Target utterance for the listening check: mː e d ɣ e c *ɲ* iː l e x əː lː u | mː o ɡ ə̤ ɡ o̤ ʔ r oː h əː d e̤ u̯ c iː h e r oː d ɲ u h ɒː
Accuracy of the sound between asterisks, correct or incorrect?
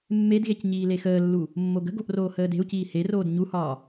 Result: correct